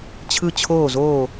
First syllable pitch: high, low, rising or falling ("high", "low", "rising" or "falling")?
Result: falling